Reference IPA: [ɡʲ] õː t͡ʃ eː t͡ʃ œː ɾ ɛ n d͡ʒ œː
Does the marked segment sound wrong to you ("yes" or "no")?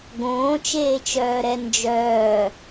yes